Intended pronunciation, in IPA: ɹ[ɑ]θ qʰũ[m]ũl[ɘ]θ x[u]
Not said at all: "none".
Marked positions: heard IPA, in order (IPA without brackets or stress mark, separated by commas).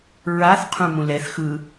a, m, ɛ, ɯ